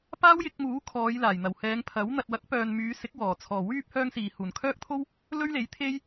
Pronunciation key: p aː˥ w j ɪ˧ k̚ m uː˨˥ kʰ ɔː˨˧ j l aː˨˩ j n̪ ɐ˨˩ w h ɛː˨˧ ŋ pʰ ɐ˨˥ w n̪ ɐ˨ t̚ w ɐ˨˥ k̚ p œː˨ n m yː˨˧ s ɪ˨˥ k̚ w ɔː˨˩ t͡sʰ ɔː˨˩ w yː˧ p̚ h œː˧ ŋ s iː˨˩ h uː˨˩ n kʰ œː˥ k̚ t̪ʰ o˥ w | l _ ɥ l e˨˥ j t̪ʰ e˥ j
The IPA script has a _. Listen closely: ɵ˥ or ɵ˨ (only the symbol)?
ɵ˥